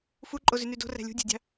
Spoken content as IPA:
f u ǃʼ o z y n y d o̤ r æ̤ lʲ ṳ dʲ æ̤ dʲ ɑ̤

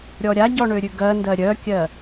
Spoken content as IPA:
ɾʲ ɔ ɾʲ a ɟ ɔ ɳ ø ɾʲ ʉ ɡ ɜ n d ɜ ɾʲ œ kʲ ɜ

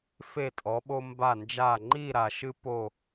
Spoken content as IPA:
f e˧˩ tʼ ɔ˩˧ ɓ o˧ m b a˧˩ n d͡ʒ a˧˩ ŋ͡ǃ i˥˧ ɾ a˩˧ ʃ ɨ˥ p o˥˧

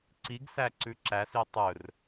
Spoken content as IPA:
ǀ i ɡ s æ ǀ ʉ ǁ æ s i tˤ ɵ r

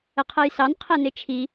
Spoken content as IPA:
ə qʰ ɜ j s ɑ n qʰ ɛ n ɪ t͡ʃʰ i

